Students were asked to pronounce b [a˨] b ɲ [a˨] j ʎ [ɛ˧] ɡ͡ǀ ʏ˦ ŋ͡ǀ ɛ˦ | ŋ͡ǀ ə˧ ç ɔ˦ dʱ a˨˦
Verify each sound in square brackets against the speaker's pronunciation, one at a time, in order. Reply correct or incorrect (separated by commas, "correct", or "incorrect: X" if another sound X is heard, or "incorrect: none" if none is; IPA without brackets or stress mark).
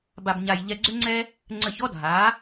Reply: incorrect: a˧, incorrect: a˧, correct